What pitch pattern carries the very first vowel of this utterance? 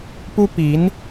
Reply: high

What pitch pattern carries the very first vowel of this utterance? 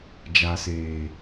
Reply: low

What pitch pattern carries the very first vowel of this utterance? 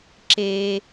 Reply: high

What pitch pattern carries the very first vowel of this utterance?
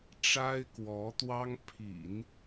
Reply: high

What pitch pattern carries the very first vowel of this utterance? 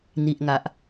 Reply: low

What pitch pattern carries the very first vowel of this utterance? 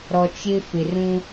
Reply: low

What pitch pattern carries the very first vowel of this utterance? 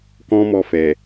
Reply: high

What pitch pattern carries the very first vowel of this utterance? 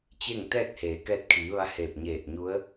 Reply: falling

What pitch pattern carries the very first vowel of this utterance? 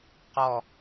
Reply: falling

